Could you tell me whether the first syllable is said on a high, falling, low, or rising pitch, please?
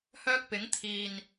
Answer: high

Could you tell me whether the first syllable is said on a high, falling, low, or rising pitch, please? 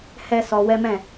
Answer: high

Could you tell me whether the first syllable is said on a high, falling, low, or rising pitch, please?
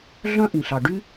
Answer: high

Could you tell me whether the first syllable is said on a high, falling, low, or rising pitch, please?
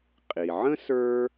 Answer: low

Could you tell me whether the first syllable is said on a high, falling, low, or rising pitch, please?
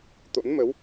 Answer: rising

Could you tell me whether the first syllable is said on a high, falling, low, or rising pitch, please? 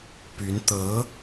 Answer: rising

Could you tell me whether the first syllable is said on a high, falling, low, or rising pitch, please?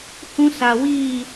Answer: high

